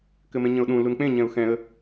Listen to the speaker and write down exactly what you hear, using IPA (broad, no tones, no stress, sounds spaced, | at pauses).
k ɘ m ẽ ɲ ə̃ ʊ̯ ɗ ũ l u n k͡p ẽ ɲ ɛ̃ ʊ̯ x ɛ̃ ə̯